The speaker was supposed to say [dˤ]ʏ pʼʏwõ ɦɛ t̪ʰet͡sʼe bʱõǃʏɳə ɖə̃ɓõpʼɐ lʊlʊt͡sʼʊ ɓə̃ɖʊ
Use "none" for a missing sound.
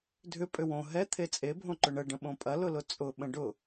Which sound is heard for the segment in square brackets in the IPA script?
dʱ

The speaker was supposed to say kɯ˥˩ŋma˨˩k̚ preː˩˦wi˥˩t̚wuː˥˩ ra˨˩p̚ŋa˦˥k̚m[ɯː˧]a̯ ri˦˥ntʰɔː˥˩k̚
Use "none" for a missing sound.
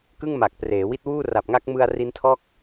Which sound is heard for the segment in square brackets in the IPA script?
ɯ˧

